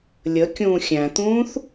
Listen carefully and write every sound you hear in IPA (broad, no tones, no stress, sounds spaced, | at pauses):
lʲ ə kʲ ũː xʲ æ̃ t̪ ũː θ